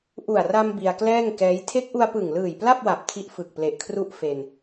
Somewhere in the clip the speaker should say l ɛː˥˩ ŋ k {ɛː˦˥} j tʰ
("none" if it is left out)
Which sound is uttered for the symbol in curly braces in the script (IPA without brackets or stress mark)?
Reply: ɛː˦˥